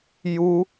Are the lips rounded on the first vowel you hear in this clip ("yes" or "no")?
yes